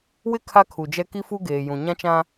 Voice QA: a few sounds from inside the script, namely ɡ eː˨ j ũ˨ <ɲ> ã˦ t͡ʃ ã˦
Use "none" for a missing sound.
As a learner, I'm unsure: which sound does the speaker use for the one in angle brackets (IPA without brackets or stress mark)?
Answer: ɲ